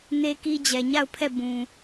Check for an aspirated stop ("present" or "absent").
present